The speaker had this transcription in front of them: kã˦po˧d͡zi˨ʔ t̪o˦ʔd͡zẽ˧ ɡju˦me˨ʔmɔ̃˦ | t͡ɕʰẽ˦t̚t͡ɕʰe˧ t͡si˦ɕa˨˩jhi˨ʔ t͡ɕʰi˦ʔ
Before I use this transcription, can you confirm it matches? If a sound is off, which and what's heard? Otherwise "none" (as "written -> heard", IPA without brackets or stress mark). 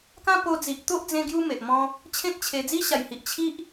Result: t͡s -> d͡z